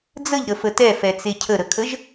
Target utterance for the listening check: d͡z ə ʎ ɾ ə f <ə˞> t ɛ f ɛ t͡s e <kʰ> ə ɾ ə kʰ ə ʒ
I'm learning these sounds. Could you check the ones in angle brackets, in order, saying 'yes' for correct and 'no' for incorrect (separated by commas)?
no, no